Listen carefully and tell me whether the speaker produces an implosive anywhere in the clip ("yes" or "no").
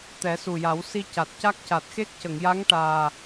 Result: no